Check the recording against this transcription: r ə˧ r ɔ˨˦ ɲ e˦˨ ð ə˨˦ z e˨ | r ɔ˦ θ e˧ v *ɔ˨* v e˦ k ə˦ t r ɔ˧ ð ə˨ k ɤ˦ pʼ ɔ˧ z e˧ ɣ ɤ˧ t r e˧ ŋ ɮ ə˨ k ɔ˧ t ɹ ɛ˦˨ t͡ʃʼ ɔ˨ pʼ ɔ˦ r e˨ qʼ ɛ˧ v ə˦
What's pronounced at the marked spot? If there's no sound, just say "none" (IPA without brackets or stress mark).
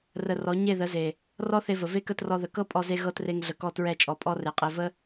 ə˨